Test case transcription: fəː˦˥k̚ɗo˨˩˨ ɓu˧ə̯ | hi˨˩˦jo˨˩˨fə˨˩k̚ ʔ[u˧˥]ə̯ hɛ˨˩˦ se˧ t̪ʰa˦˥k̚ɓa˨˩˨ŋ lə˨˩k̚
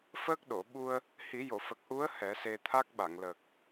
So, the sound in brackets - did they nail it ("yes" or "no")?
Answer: yes